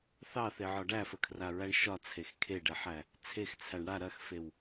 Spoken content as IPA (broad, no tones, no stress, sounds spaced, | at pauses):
θ ɑ θ e ʕ ɒ ɖ æ f ə kʰ r a ɹ æ ɳ ʃ ɒ t͡sʰ e x kʰ e ɖ ɛ ħ æ | t͡sʰ e x t͡sʰ æ ɳ ɽ a ɾ ɐ x f e w